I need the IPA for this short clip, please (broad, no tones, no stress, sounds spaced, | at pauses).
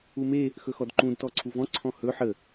u m e | x ɵ x ɔ d ǃ ũ d t ɔ ǀʰ u v ɔ̃ ǀʰ ɔ̃ h ɵ ħ ə